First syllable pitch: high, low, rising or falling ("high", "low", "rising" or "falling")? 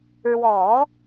low